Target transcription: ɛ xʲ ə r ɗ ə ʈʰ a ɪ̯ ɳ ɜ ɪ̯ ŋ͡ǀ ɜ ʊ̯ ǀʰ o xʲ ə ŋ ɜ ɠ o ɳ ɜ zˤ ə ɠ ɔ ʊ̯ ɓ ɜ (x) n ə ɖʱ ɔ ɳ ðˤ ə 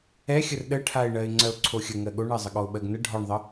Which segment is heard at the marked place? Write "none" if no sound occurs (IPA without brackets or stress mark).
ɡ